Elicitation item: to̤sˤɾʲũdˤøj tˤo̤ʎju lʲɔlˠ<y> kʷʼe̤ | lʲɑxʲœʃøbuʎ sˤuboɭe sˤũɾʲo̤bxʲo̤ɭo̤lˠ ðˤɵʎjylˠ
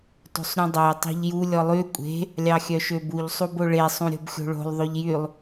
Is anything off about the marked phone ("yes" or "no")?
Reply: no